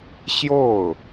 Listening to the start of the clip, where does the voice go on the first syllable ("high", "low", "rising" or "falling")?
falling